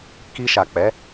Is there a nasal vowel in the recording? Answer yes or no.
no